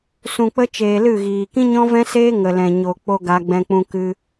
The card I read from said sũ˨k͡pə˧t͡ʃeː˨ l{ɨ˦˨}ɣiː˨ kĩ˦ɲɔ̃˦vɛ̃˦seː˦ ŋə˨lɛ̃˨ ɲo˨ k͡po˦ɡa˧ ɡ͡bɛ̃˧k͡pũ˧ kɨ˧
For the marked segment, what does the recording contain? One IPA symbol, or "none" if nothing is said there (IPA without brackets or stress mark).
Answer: ɨ˦˨